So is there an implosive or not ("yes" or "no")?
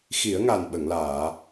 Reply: yes